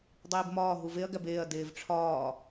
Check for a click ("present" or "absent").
absent